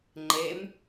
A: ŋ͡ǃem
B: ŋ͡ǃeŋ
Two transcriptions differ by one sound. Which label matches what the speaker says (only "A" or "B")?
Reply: A